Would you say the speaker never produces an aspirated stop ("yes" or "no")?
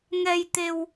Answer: yes